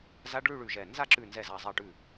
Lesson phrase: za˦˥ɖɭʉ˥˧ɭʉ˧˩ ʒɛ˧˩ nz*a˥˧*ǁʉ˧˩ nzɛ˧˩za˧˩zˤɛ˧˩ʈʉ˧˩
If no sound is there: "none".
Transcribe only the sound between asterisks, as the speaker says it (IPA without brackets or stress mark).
a˥˧